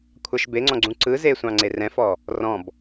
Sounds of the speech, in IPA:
kʷʰ a ʃ b e ŋ͡ǀ ɔ̃ ɡ͡ǀ ũ ǀ ɯ z e sʷ ɑ̃ ŋ͡ǀ e r ɛ̃ f ɔ | r ɔ̃ b

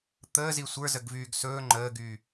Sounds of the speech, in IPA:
t̪ əː z i sʷ ə˞ z ə ɡ v yː ɡ s ɵː ŋ͡ǃ əː ɡ yː

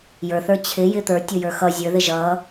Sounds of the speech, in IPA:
j ə˞ θ ə˞ t͡ɕʰ ɪ j ɪ t̪ ə˞ tʲ ʊ j ə˞ x ʌ zʲ ə˞ ð ɪ ʒ ʌ

